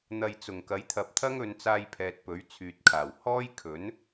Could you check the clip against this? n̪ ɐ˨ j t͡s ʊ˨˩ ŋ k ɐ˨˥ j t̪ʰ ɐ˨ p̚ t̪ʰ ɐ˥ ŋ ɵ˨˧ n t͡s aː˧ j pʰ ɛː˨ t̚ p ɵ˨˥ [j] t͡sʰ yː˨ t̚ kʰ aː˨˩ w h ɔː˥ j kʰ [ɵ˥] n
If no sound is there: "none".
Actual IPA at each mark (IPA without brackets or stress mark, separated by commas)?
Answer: ɥ, ɵ˨˥